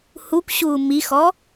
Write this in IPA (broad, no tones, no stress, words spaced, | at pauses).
hukʷɕuː mixɔ